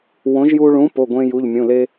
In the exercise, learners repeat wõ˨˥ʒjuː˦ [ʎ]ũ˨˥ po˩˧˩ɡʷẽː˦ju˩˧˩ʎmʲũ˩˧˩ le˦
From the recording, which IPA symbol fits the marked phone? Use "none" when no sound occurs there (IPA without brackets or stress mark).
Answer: ɭ